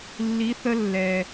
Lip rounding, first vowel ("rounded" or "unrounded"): unrounded